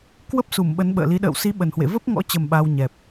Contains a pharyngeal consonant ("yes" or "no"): no